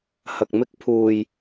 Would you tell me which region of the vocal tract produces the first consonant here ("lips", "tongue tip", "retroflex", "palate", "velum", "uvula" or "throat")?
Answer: throat